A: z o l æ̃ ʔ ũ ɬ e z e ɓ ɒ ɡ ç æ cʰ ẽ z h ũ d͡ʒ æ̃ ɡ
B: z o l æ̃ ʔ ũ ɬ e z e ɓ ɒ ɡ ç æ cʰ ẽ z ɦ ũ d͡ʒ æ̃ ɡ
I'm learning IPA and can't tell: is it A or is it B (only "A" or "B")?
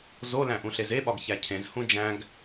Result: A